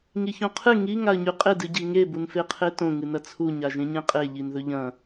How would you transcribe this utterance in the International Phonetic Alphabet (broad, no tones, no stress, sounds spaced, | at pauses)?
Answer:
ŋ i ç õ qʰ ɨ ŋ i ŋ a ə̯ ɲ ʉ qʼ e d ɨ ɟ i ŋ e b u n f e qʰ e t õ ŋ ɨ n ɐ t͡sʰ u ɲ a ʒ ẽ ɲ ẽ qʼ e ʎ i n ð ɵ ʎ ɐ̃